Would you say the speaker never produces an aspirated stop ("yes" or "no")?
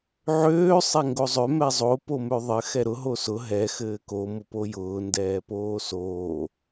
yes